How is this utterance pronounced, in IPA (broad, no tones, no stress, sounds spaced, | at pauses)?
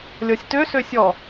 lʲ ɔ sʲ t ø s ø sʲ ɔ